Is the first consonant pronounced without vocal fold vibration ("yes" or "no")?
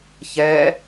yes